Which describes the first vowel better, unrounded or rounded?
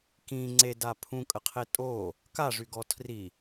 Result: unrounded